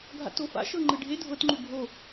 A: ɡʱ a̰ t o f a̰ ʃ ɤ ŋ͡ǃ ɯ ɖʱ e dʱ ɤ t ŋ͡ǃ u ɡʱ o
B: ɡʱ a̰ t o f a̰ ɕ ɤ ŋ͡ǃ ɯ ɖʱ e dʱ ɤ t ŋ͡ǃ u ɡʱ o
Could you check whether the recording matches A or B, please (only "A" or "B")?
A